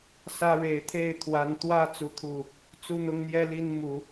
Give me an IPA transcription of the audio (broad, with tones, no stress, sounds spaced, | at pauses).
s ä˦ ɻ e˨˦ ɪ̯ t̪ʰ e˥˨ ɪ̯ t̪ʰ w a˨˦ n t̪ w ä˦ t͡s u˨˦ t̪ʰ u˨˩ | t͡s u˦ n̪ ʊ˦ ŋ n̪ j ɛ˦ l i˦ n m u˨˦